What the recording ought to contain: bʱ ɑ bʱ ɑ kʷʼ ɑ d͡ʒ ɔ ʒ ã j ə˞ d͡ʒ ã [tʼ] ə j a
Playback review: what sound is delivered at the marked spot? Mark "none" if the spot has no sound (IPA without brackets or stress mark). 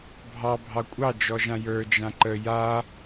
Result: ǃ